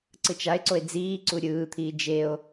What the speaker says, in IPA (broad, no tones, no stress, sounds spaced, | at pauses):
ǀ ɯ t͡ʃ a e̯ ǀ o e̯ d͡z iː ǀ u ɾʲ ɯː t̪ʰ iː d͡ʒ e o̯